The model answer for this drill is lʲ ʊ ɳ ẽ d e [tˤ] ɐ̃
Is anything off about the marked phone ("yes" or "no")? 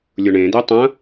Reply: no